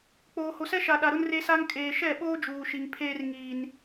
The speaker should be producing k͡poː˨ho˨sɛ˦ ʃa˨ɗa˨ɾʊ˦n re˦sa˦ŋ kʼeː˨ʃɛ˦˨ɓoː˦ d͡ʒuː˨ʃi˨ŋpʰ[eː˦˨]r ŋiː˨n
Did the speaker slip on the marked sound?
yes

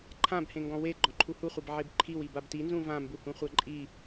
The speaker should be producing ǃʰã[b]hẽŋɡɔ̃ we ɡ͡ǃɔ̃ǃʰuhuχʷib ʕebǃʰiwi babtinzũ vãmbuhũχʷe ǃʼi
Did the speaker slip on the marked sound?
no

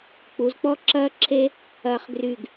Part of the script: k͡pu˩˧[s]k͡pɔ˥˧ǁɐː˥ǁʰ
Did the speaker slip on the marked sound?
yes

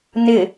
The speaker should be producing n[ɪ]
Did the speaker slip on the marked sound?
no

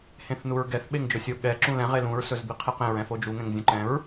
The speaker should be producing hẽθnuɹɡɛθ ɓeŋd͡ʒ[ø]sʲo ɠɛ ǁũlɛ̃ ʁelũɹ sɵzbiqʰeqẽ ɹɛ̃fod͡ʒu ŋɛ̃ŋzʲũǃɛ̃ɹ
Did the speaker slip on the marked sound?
yes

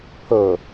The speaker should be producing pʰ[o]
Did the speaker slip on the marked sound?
no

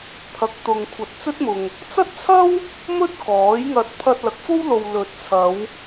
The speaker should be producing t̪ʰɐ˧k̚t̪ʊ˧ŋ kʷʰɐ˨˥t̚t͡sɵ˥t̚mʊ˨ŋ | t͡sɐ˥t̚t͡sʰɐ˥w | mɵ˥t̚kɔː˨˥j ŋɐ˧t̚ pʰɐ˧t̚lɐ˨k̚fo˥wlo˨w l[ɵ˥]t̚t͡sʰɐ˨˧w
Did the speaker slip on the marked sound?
yes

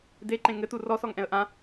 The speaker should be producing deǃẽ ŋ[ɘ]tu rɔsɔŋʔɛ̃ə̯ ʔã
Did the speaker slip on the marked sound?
no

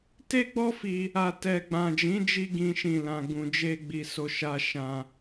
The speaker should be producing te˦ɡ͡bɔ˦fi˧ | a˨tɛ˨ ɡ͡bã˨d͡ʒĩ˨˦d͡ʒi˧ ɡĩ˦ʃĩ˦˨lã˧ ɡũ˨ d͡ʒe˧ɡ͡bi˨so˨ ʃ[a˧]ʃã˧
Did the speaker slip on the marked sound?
no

